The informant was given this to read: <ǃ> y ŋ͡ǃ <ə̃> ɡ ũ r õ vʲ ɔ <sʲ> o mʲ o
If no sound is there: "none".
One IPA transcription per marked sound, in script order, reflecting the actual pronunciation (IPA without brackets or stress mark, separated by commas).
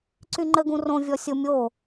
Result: ǀ, ə, sʲ